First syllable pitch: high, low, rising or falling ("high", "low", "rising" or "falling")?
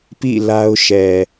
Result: falling